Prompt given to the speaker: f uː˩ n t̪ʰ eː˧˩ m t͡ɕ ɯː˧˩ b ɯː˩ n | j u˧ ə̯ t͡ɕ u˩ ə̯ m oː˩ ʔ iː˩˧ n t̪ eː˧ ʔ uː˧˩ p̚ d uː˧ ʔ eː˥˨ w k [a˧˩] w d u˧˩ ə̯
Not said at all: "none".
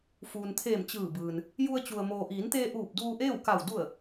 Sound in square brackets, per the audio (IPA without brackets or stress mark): a˧˩